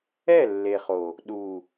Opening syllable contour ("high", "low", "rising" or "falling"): falling